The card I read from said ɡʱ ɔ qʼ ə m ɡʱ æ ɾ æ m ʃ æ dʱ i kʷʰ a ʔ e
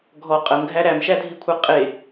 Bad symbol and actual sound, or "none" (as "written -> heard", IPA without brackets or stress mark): ʔ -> qʼ